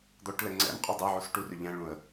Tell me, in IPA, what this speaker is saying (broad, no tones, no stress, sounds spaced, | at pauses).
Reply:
d̪ ɔ ʈ l ɛ ŋ͡ǀ ɛ̰ m qʼ u dˤ ɛ ʕ u s ʈ u r ʏ ʎ ɛ̃ ɭ ũ ə̯